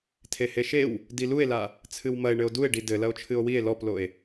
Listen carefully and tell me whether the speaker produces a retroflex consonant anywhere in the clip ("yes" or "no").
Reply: yes